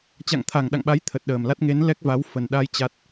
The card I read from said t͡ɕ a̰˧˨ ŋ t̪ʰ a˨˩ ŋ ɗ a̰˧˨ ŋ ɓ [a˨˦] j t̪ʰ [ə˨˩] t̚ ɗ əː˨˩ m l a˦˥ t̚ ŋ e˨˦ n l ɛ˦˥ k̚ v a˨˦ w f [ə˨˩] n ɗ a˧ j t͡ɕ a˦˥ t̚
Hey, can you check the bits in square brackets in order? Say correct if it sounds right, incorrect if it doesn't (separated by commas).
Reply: correct, correct, correct